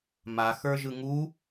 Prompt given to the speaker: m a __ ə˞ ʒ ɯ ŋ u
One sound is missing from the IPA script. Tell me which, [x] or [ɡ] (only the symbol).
x